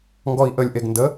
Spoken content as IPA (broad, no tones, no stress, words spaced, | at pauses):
ŋɡɔi̯ʔəlʲʔeɡ ndə